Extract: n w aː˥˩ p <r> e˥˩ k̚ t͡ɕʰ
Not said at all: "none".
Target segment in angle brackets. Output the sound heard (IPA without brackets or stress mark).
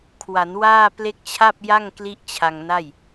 l